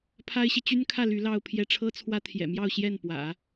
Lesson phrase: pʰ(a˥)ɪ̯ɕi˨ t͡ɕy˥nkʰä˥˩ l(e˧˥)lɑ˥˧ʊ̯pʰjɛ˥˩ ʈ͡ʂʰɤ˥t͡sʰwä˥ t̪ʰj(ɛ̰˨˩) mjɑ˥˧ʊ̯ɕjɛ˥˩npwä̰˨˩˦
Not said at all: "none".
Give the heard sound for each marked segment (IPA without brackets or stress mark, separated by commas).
a˥, y˧˥, ɛ̰˨˩